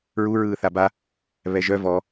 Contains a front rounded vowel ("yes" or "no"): yes